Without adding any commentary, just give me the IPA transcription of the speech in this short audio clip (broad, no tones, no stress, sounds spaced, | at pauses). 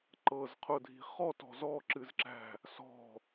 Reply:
ǃ ɤ z qʰ ʊ dʱ i̤ χ ɔ t ɔ̤ z ɔ ǁ ɨ z ǁ æ̤ | s ɔ̤